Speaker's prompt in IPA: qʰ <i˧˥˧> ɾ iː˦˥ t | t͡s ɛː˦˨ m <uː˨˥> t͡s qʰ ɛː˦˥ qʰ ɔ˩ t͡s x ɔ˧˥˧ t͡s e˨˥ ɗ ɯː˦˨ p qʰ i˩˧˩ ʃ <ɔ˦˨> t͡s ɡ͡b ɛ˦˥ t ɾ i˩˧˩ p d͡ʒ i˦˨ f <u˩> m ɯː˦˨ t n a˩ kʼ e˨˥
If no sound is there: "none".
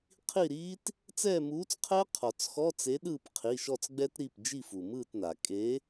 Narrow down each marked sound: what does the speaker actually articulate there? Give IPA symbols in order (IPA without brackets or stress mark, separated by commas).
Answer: i˦˨, uː˨˥, ɔ˦˨, u˩